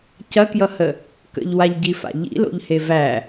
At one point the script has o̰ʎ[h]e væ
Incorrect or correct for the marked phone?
correct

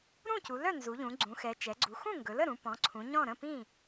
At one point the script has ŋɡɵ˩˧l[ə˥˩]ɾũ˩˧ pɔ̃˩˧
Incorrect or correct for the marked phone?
correct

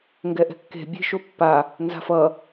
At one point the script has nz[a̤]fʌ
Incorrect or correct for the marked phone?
correct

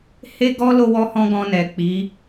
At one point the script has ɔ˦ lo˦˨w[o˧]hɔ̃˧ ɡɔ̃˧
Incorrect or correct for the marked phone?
incorrect: ɔ˧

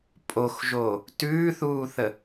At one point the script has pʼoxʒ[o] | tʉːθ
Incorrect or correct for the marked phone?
correct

